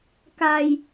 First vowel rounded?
no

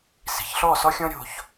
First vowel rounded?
no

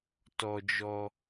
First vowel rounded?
yes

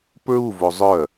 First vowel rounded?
yes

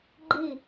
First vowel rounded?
no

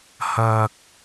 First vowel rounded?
no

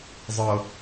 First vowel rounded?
no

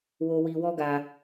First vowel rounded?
yes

